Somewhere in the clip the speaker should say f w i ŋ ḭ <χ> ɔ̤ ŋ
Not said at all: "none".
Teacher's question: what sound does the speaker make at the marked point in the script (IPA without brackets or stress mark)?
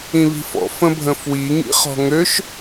χ